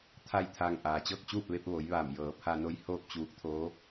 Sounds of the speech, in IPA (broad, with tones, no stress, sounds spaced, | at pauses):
t̪ʰ a˥˨ j t̪ʰ aː˧ ŋ ʔ aː˩ t͡ɕ ɤː˥˨ k̚ t͡ɕ uː˥˨ p̚ ʋ e˧ p̚ ʋ o˩˧ j ʋ aː˧˩ m j ɤː˩˧ pʰ a˧ n o˧˥ j h oː˥˨ p̚ t͡ɕ uː˧˥ k̚ t̪ʰ oː˧˥